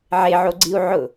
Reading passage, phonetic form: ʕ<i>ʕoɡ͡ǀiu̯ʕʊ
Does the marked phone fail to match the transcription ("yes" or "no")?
yes